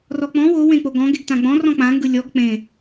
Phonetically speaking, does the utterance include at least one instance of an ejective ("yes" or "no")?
no